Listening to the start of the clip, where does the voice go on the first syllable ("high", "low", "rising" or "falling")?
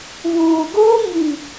low